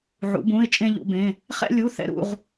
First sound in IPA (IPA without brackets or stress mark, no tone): ʕ